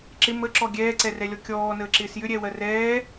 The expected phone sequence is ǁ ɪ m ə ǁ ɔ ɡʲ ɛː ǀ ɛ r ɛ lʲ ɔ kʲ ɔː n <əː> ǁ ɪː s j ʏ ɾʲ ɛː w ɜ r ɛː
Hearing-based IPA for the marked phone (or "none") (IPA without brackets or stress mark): əː